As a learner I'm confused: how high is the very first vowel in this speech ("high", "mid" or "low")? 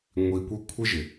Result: high